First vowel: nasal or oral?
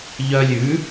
oral